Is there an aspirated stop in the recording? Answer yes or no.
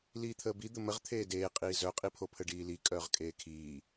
yes